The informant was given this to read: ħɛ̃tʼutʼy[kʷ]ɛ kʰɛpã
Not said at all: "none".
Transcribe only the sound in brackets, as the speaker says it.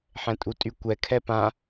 kʷ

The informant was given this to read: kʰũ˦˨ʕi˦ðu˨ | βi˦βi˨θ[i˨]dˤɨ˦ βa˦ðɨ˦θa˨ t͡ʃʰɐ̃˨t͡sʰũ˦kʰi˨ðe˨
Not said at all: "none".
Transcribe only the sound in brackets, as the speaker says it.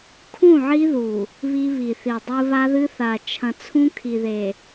i˨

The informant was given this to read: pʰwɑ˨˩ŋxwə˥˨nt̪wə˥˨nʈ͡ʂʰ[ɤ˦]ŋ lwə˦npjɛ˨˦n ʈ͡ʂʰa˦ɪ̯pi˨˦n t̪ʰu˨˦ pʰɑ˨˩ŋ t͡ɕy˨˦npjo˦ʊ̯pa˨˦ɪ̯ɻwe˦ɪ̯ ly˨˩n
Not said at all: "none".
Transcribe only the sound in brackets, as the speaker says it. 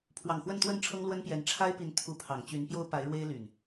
ɤ˦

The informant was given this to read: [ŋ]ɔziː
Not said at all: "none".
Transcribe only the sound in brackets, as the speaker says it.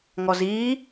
ŋ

